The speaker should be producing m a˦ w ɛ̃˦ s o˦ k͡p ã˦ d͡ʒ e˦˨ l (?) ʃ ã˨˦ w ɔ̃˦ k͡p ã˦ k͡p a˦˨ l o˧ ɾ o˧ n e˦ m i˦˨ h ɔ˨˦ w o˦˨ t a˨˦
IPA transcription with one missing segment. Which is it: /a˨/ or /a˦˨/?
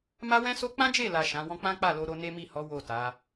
a˨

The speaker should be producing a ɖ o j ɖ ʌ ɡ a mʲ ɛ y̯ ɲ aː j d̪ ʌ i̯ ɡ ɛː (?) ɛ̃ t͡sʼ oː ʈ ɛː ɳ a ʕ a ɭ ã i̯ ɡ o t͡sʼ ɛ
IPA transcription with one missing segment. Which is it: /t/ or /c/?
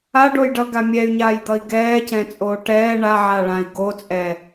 c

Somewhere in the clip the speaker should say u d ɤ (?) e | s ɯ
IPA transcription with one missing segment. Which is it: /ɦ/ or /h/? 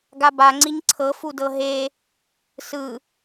ɦ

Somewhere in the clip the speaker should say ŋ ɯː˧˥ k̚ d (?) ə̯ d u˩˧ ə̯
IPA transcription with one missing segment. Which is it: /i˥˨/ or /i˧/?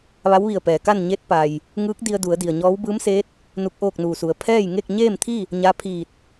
i˧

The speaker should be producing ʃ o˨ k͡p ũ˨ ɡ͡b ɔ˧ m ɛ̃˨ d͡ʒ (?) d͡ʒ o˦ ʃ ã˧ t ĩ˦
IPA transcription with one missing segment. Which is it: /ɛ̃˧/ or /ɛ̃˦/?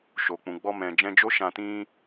ɛ̃˧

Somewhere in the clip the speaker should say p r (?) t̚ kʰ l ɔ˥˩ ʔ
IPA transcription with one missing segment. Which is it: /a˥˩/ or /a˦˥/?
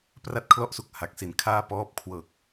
a˥˩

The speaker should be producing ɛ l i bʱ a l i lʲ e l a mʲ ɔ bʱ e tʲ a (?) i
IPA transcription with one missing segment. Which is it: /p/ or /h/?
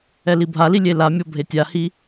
h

